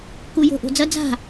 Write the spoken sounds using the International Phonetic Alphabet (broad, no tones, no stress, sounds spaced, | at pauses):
k u j o̤ ʔ o̤ d͡z ɐ d͡z a̤